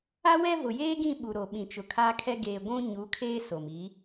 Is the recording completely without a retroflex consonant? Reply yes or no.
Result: yes